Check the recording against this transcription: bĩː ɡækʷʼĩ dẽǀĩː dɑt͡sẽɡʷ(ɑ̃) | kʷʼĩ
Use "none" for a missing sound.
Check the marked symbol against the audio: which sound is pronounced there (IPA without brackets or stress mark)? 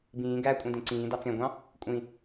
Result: ɑ̃